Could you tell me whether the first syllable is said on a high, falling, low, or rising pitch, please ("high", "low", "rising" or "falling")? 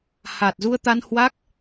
low